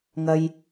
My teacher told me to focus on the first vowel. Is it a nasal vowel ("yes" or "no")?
no